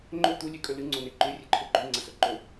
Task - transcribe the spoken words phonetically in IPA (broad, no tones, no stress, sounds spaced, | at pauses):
ŋ͡ǃ ɵ t̪ u lʲ ʉ kʼ ɵ l ɨ ŋ͡ǀ o n e ǃ ʉ rʲ ɨ ǃʰ ɵ ɡ͡ǃ ʉ ŋ͡ǀ ɐ s ɵ ǃ ɵ